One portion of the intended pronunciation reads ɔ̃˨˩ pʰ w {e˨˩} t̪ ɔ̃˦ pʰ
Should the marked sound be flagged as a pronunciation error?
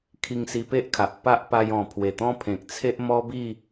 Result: no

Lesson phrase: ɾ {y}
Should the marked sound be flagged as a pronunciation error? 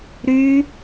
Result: no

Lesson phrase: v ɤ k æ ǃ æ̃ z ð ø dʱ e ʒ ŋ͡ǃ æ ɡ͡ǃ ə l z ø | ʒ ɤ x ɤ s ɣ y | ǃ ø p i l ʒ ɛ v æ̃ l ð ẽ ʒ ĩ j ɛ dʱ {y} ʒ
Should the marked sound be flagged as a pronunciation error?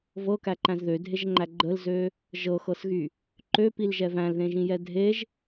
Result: yes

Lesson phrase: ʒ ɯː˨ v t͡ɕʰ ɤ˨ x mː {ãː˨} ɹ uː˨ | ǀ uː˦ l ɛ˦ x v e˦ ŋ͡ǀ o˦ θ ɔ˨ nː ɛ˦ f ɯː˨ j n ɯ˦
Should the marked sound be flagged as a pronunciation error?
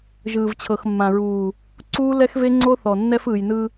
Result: yes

